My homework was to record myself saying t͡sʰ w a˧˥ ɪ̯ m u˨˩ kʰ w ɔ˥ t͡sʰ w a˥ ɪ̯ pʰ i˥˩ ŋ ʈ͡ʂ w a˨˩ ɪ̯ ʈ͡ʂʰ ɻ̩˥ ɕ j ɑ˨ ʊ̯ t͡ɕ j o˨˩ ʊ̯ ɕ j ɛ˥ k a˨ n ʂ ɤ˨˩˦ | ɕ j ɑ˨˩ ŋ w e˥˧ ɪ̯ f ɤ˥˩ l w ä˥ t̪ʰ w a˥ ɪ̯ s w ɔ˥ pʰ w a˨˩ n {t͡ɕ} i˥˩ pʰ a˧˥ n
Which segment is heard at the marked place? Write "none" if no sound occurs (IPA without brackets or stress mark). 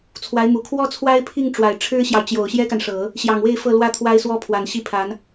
ɕ